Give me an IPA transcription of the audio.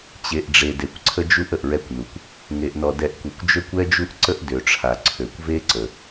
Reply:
t͡ɕ e˨ ʔ ɖ͡ʐ e˨ d e˨ kʷ ǀʰ ə˦ d͡ʒ u˦ ʔ ə˨ ʔ ɹ ɛ˦ kʷ n u˨ kʷ | ŋ e˨ ʔ n ɔ˨ d ɛ˨ ʔ kʷ e˨ kʷ d͡ʒ ø˦ kʷ ɛ˦ d͡ʒ u˦ ʔ ǀ ə˦ ʔ d ø˨ ʈ͡ʂʰ a˨ ǀʰ ø˨ kʷ v e˦ ǀ ə˨

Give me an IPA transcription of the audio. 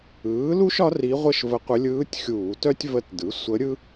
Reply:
ɯː˩˥ l u˥ ʃ ɒ˧˥ r i˧˥ ʁʷ ə˥ ʃ v ə˧˥ qʷ ə˧˥ lʲ ɯː˧˥ tʲ xʲ uː˧˩˧ t œ˥ tʲ v ə˧˥ t d ɯ˩˥ sʷ ə˧˥ ɾʲ ɯ˥

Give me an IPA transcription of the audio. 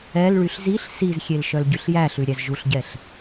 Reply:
ɛ l ɭ y ɬ z i ɬ s i z xʲ e l ʃ œ l ɟ y ɬ j æ ɬ ʉ ɾʲ æ z ʒ u ɬ ɟ ɛ ɬ

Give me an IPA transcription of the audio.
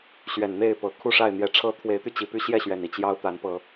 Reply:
ɕ ɥ ɛ˨˩ n n̪ e˥˨ ɪ̯ p ɤ˨˩ kʰ u˥˨ ʂ a˥˨ ɪ̯ n̪ j ɛ˨˦ ʈ͡ʂʰ ɤ˦ t̪ʰ w e˨˦ ɪ̯ t̪ y˧ t͡ɕ i˨˩ p y˦ ɕ j ɛ˥˨ ɕ ɥ ɛ˨˩ n i˥˨ t͡ɕ j ɑ˦ ʊ̯ t̪ a˨˦ n p ɤ˨˦

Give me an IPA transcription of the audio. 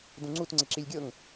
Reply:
d ũ ŋ͡ǀ u t ŋ͡ǀ ɪ ǁ i lʲ ɡʲ ɤ ŋ

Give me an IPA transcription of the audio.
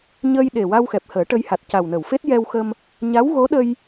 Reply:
ɲ ə˧ j ɗ e˨˩ w a˧ w x ɛ˨˩ p̚ h əː˨˩˦ ʈ ə˧ j h a˨˩ t̚ c a˨˩ w n ə˨˩˨ w f e˦˥ t̚ j ɛ˧ w x ə˧ m | ɲ a˧˥ w ɣ o˧˥ ɗ ə˧ j

